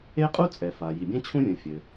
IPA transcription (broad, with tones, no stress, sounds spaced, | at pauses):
e˥ qʼ u˥ t͡sʼ ɛ˩ f a˩ j i˩ bʲ ɛ̃˥ t͡ɕʰ ũ˥ vʲ ũ˩ fʲ ɘ˩